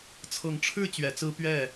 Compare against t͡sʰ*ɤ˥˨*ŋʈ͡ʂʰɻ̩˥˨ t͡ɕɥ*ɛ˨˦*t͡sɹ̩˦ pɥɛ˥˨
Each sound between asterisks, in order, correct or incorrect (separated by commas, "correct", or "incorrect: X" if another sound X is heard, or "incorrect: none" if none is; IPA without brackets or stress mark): incorrect: ɤ˨˦, correct